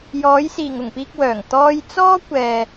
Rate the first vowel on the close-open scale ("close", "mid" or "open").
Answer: mid